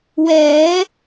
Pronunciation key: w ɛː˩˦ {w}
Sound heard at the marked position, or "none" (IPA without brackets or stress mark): none